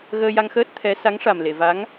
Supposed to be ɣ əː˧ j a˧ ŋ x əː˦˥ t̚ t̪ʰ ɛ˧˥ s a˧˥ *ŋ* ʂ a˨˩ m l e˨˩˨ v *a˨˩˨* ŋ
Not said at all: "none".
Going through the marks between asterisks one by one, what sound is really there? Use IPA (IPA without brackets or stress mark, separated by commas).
ŋ, a˧˥